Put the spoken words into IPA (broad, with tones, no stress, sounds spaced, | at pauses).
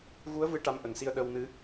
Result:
ɣ u˧˥ ə̯ v ɨ˧ ʈ a˧˥ m ʔ ə˨˩ ŋ s i˧ ə̯ ɗ ə˧ w n ɨ˧˥